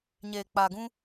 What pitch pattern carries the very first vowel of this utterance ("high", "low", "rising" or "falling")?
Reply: low